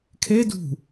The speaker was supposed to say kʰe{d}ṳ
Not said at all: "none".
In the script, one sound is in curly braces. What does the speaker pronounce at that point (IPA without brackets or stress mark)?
d